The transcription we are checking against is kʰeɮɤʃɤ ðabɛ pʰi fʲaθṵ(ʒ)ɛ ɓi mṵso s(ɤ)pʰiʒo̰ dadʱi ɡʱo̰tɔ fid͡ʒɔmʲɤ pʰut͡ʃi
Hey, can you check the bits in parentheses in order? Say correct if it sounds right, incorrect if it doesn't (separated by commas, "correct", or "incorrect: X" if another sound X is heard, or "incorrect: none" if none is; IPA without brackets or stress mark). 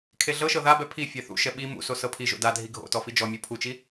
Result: incorrect: ʃ, correct